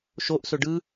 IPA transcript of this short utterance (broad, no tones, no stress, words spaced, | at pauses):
ʃoʔsɵ ɖɯ